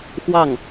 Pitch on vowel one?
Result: falling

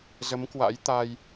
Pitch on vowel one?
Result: rising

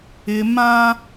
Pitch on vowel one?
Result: high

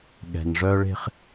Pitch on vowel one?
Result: low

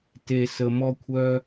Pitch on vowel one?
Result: low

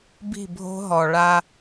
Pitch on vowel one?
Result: falling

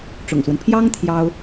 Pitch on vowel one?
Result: low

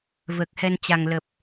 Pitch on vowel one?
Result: low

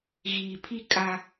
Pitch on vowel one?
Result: low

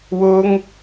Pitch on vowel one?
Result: high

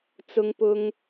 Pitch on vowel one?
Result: high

